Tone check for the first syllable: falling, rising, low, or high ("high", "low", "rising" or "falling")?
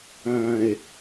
low